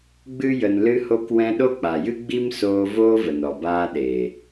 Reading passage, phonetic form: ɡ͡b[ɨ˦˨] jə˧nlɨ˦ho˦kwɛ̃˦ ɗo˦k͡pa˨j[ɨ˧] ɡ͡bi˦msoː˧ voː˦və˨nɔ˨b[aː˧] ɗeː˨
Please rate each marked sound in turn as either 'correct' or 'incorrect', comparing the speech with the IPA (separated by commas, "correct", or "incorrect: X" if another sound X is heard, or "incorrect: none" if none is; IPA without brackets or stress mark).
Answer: incorrect: ɨ˦, incorrect: ɨ˦, correct